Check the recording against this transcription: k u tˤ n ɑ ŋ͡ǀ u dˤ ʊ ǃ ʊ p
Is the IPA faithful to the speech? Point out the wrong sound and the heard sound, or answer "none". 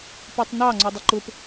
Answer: k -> p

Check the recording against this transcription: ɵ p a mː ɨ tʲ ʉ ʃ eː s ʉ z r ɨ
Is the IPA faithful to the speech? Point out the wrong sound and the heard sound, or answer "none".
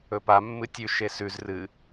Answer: eː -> e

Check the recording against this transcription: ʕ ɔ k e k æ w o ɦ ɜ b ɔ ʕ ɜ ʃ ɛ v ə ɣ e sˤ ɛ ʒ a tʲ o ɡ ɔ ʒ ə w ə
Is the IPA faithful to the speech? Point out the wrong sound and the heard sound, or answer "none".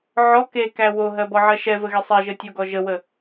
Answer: a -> ə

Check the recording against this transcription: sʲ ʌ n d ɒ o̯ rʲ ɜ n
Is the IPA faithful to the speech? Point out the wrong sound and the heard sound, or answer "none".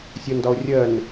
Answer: none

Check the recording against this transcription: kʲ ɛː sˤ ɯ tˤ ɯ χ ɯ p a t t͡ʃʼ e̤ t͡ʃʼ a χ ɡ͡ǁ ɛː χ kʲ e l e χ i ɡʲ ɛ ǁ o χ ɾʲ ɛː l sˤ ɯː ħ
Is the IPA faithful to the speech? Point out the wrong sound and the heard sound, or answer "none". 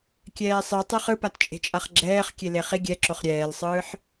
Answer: none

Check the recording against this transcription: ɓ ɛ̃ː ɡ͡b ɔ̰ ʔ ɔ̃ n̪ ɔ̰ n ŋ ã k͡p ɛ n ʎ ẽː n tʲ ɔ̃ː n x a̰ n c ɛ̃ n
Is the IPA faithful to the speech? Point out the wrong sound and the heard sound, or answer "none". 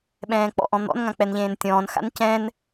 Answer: ɡ͡b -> k͡p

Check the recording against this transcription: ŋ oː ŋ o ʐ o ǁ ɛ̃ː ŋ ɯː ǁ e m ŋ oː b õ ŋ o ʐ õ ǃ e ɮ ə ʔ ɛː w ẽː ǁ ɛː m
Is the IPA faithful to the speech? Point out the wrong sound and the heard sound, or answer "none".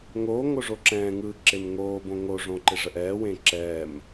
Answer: ɮ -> ʐ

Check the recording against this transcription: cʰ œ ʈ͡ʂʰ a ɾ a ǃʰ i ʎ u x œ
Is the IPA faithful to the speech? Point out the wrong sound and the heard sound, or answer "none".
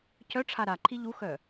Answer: none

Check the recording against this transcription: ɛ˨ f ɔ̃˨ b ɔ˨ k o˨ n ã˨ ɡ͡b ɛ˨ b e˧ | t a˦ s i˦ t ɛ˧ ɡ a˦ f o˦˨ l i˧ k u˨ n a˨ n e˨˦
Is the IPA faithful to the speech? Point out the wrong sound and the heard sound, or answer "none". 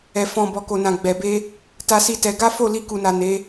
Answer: none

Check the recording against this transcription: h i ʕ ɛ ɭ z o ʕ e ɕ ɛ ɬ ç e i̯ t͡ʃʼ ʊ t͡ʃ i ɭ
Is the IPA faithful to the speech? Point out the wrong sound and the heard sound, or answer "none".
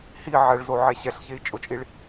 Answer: t͡ʃ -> t͡ʃʼ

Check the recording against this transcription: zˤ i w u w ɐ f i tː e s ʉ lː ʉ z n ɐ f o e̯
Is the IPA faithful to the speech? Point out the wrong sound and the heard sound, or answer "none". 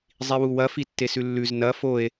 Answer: none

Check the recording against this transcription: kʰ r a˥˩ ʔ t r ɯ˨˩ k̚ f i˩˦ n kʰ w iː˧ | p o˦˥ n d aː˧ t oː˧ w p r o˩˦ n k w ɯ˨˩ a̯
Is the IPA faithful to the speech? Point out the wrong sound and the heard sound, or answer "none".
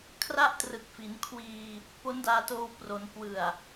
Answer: none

